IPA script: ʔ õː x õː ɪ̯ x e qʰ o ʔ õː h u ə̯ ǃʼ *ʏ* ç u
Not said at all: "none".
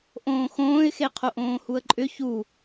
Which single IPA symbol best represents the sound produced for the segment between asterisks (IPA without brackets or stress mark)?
ʏ